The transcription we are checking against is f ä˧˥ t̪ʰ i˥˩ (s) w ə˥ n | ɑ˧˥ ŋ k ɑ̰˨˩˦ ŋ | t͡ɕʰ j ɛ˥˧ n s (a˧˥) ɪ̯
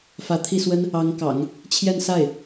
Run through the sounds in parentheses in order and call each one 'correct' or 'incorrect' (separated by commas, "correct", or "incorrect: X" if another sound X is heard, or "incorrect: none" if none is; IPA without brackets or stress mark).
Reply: correct, incorrect: a˥˩